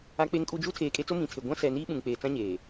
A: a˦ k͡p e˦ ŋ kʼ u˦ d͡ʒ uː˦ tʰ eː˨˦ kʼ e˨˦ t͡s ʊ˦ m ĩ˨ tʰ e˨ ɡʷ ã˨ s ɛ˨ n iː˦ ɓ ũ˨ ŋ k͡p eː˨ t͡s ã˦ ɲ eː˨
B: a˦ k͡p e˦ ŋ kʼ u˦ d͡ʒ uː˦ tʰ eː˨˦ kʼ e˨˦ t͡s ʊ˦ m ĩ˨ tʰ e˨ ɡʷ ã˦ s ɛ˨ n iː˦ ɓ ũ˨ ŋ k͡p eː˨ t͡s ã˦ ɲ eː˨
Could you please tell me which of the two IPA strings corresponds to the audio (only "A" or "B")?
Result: B